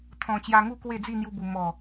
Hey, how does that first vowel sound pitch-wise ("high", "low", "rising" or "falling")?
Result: low